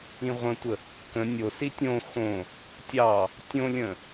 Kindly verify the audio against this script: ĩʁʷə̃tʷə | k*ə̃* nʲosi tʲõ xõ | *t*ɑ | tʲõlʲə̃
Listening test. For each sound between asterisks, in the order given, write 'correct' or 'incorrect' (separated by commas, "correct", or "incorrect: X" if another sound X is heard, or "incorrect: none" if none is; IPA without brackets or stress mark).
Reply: correct, incorrect: tʲ